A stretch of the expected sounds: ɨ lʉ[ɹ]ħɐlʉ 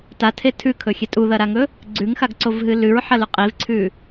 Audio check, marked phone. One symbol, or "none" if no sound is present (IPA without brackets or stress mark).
ɹ